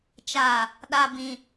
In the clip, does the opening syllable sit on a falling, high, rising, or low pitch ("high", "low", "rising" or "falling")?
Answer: low